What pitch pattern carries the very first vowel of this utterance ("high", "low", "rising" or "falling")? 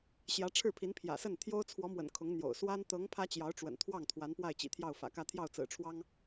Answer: rising